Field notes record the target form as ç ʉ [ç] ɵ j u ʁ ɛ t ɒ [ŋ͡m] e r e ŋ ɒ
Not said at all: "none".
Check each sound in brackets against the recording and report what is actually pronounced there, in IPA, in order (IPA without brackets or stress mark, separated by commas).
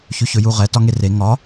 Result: ç, ŋ